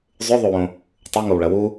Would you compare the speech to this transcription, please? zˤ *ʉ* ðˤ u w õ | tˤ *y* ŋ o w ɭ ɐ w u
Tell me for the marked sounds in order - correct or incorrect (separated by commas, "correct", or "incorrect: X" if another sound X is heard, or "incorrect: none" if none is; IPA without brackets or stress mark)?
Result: correct, incorrect: u